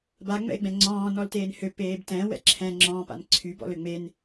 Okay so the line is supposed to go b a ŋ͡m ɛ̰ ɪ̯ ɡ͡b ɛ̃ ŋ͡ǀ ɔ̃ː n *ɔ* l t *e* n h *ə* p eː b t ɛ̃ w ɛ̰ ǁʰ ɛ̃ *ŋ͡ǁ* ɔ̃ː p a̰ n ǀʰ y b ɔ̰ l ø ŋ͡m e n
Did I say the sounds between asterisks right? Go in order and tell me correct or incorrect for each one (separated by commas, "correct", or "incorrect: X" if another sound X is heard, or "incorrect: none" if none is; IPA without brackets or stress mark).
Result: correct, incorrect: eː, incorrect: ø, correct